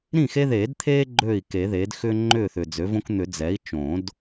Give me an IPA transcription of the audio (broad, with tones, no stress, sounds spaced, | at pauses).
ɾ ĩ˥˩ x e˦ ð eː˨˩˦ d t̪ʰ eː˦ ɡ͡ǃ øː˥˩ i̯ k e˨˩˦ ð eː˩˥ d x ʏː˦ ŋ͡ǃ ʏː˥˩ θ ʏ˨ d͡z ø˩˥ v õ˦ k n̪ ʏ˨˩˦ d͡z ɛ˩˥ i̯ t͡ʃ õ˨˩˦ d